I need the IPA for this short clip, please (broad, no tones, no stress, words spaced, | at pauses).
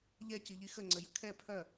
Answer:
ʎɛciʎi xəŋ͡ǀəjə kʰɛ pʰœ